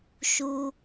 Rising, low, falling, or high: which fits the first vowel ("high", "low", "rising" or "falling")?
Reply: low